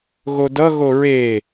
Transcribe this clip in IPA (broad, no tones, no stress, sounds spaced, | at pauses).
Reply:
ɣ o d ʌ ɣ o ɹ e